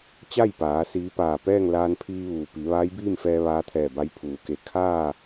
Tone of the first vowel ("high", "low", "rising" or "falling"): falling